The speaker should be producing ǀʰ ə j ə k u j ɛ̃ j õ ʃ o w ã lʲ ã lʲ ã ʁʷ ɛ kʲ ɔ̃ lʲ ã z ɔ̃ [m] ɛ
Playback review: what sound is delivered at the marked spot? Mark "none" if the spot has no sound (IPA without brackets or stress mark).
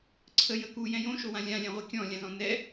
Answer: n